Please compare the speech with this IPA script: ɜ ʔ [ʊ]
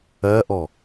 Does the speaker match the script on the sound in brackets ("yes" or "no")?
no